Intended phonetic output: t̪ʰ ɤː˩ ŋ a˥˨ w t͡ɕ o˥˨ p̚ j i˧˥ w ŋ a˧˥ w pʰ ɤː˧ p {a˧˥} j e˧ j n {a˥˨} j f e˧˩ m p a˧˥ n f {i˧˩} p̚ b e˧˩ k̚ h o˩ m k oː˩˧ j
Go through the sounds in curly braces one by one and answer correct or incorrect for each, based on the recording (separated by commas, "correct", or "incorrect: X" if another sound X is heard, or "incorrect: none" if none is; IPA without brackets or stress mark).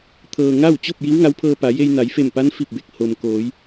incorrect: a˩˧, incorrect: a˩˧, correct